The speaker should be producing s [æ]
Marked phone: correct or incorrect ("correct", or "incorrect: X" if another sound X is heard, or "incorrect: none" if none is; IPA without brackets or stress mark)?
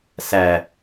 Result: correct